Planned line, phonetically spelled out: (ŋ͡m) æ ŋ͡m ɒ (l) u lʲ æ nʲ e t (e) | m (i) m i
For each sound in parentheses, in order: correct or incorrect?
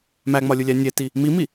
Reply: incorrect, incorrect, incorrect, correct

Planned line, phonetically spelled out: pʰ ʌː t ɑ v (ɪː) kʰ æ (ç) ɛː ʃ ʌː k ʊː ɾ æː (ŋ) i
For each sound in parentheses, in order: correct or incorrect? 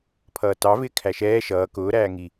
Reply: correct, incorrect, correct

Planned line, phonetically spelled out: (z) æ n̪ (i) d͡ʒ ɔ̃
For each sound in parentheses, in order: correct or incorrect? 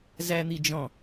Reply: correct, correct

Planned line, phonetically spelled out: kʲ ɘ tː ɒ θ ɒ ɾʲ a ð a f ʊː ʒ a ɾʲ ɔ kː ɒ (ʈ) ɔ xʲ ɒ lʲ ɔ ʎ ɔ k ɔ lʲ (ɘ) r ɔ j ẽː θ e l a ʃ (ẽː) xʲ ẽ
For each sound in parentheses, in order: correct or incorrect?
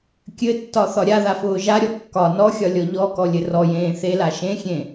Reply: incorrect, correct, incorrect

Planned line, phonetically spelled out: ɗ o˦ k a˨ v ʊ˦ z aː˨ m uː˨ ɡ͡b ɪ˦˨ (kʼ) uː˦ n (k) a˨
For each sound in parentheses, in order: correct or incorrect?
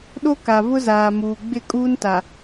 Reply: correct, incorrect

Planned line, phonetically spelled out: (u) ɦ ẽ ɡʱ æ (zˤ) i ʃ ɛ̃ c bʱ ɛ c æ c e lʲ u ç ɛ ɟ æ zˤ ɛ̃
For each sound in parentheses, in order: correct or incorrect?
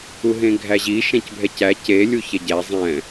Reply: correct, incorrect

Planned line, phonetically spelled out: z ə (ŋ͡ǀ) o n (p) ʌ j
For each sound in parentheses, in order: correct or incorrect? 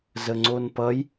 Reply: correct, correct

